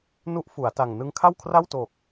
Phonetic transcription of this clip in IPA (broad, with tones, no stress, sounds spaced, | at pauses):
n u˦˥ ʔ f u˩˦ a̯ t a˨˩ ŋ n ɯ˧ ŋ kʰ a˥˩ w kʰ r a˥˩ w t o˨˩ k̚